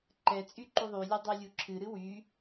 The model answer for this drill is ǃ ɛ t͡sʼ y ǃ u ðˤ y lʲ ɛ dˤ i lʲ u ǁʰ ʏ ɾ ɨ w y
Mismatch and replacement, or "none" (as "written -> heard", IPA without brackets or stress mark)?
ʏ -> ɨ